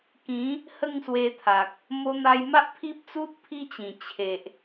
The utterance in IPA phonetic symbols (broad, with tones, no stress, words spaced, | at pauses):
kĩ˨˦ | hə˥˧ŋswe˧t̪ʰa˨k̚ | mo˧n̪a˧j ma˦ʔpʰi˦p̚t͡su˦t̚ pʰi˦t͡ɕĩ˨˩ t͡ɕʰe˨ʔ